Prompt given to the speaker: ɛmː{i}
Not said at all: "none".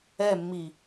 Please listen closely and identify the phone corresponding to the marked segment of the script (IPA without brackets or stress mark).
i